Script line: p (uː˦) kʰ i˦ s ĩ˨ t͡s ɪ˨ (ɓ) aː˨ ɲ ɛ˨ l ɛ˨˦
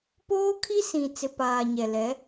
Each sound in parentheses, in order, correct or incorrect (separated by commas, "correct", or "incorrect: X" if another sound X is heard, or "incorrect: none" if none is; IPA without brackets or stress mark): incorrect: oː˦, incorrect: p